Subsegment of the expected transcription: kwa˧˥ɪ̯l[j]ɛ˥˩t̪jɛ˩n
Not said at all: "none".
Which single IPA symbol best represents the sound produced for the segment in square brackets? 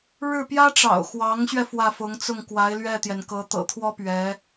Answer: ɥ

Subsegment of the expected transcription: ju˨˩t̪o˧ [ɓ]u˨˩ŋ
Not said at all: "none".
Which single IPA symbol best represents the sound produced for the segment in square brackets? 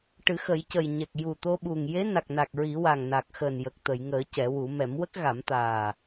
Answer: ɓ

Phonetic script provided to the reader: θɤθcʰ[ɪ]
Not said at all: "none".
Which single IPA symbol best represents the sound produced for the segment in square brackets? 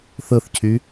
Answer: y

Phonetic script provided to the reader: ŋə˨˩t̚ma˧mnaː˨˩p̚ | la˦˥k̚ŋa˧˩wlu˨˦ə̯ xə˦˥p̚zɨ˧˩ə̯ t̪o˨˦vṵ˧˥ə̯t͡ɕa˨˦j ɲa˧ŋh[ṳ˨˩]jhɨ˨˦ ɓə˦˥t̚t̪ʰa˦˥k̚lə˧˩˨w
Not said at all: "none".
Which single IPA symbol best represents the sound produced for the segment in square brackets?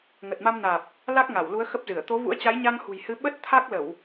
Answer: ṳ˨˩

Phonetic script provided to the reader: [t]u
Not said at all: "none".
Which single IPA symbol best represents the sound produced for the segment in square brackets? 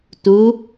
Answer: t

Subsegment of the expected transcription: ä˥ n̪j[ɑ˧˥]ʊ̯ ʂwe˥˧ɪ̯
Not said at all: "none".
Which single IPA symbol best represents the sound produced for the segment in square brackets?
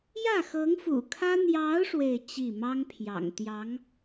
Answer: ɑ˧˥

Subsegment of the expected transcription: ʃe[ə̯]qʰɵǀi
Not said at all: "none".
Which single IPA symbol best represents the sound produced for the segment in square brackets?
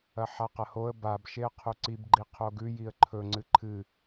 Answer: ə̯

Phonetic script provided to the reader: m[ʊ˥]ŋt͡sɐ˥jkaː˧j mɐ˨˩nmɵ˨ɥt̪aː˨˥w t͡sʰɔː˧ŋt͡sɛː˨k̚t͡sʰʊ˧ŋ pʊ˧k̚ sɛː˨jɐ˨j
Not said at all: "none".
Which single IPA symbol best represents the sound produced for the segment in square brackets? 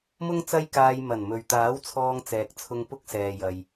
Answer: ʊ˥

